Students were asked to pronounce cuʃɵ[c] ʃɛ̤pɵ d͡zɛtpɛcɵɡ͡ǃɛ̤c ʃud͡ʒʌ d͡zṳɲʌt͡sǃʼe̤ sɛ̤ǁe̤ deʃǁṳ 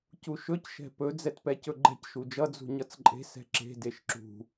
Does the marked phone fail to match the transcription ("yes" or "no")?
no